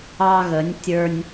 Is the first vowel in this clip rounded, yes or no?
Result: no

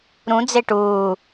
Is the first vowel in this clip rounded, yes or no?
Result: yes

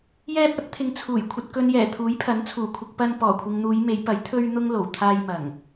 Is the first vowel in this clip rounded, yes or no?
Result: no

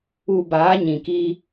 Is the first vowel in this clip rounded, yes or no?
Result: yes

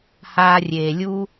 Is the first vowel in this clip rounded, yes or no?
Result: no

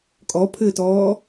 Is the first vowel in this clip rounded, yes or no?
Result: yes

